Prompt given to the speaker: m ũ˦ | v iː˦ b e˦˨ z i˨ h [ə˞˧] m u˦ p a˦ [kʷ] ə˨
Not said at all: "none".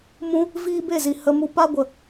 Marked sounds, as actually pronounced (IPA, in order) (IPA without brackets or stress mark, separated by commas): ə˧, ɡʷ